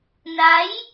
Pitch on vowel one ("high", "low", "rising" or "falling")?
rising